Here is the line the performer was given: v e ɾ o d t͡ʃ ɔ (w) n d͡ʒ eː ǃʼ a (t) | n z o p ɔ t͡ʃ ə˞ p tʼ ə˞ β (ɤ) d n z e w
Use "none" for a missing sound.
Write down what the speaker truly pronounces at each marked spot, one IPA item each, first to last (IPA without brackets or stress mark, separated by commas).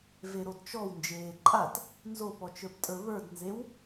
w, t, ə˞